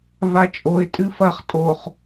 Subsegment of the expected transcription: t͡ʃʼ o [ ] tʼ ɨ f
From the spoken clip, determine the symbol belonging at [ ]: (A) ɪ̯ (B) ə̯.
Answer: A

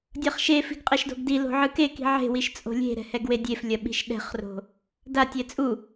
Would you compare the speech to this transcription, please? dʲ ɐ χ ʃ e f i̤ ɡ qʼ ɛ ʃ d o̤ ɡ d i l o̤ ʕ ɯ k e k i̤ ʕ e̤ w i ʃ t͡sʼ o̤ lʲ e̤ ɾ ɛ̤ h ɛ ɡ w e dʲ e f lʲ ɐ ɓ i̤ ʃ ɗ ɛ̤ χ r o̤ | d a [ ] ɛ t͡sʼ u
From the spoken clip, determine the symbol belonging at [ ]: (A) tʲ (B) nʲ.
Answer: A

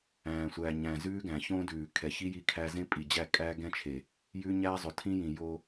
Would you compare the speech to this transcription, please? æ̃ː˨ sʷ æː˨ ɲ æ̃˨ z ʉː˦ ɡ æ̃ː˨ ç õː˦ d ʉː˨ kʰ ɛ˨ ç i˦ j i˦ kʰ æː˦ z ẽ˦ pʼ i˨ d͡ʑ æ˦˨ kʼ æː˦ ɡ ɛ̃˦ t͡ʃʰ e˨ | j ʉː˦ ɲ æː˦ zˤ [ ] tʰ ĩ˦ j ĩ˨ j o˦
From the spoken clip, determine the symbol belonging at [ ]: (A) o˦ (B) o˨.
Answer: B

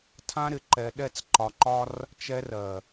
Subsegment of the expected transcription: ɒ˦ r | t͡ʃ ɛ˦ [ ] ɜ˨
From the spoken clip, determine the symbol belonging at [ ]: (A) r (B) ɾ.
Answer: A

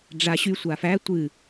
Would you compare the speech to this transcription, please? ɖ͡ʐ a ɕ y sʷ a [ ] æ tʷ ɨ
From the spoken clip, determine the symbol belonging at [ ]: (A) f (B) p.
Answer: A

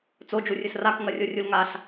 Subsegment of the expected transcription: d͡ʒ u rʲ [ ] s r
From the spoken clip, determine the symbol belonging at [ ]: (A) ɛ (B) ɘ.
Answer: B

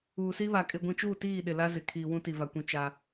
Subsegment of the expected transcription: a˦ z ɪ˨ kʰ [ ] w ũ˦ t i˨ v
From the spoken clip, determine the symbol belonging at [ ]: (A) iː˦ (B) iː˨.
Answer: B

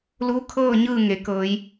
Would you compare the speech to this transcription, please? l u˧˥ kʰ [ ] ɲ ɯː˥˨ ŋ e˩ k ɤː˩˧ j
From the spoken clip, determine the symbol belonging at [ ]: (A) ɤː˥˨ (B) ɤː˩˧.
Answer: A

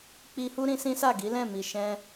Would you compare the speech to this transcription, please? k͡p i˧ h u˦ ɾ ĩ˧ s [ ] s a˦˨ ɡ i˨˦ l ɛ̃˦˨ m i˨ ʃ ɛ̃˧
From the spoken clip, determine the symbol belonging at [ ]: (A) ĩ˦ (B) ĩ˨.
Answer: A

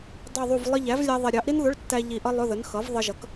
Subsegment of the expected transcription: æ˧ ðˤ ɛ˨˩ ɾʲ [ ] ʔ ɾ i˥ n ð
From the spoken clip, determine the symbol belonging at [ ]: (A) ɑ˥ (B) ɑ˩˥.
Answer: B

